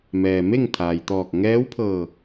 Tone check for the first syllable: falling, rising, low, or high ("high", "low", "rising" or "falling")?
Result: low